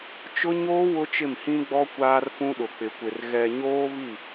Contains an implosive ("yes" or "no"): yes